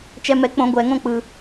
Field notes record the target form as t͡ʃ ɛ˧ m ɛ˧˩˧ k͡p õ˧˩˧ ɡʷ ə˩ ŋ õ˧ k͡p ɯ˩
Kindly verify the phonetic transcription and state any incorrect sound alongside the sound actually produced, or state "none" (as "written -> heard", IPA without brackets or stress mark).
ə˩ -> ɛ˩